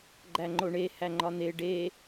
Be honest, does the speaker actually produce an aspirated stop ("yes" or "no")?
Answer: no